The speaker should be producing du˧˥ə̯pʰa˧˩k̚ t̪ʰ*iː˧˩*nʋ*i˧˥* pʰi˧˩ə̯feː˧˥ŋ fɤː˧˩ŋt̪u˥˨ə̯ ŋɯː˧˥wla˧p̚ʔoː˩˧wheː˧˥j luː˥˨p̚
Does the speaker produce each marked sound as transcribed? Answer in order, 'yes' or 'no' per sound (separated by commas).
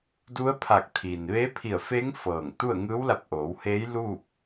no, no